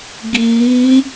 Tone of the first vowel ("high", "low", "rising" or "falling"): rising